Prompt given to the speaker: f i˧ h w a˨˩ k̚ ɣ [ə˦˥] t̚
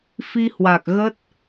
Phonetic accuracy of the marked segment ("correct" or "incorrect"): correct